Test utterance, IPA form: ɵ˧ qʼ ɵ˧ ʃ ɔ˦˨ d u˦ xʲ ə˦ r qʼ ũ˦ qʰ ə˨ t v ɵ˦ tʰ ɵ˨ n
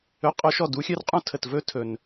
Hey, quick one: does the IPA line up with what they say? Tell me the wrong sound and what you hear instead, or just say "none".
qʰ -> tʰ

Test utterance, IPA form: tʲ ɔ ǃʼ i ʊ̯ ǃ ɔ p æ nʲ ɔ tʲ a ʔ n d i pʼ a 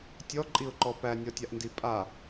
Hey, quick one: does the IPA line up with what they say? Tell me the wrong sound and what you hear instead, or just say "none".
none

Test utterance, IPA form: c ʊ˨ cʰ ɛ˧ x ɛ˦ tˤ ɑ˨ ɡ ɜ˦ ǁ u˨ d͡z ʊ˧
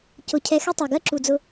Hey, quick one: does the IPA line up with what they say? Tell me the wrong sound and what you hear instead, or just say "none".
none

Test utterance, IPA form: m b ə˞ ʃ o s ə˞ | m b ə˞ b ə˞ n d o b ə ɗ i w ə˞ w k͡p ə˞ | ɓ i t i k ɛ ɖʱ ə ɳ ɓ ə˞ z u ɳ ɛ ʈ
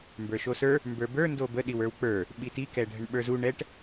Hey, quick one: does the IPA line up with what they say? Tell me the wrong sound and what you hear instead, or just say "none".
none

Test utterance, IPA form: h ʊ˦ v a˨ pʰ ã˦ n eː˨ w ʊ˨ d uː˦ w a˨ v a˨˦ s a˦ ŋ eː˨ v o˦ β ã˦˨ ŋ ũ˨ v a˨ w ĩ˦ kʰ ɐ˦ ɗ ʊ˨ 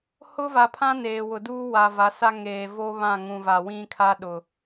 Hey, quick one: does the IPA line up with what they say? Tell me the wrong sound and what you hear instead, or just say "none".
ɐ˦ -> a˦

